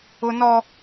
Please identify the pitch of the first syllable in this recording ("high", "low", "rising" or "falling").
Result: high